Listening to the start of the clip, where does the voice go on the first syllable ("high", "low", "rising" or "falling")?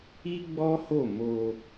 high